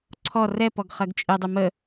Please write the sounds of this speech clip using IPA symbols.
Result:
ǀʰ ɔ r ɛ p ɔ ɡ χ ɜ ɡ t͡ʃʼ ɨ dˤ ʉ m ə

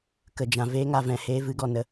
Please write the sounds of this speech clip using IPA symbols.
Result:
k ə˨ d͡ʒ ã˨ v eː˧ ŋ a˨ v ɛ̃˨ h eː˧ v ɨ˨˦ ɡ ɔ˨ n ə˧

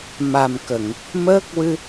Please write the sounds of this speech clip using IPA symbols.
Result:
m a˨˩ m k ə˨˩˨ ŋ | m əː˦˥ k̚ w ɨ˧

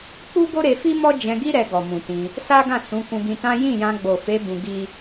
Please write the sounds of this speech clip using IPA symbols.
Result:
k͡p u˦ ɡ o˦ ɾ e˧ f i˦ m ɔ˦ d͡ʒ ɛ̃˧ ɡ i˦ ɾ ɛ˧ ɡ ɔ˨ m ũ˨ t ĩ˧ | s a˦ ɡ ã˦˨ s ũ˨˦ k ũ˧ ɡ ĩ˧ t ã˦ j ĩ˦˨ j ã˧ ɡ͡b o˨ f e˨˦ b ũ˧ ɡ i˦

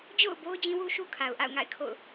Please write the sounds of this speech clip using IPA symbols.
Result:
d͡ʑ o̰˦˨ ʊ̯ b o˦ ʊ̯ d͡ʑ ĩ˦ w u˦ ʃ u˦ kʰ a˨ ʊ̯ ʔ a̰˦˨ ʊ̯ ŋ a̰˦˨ ɪ̯ kʰ o̰˦˨ ʊ̯

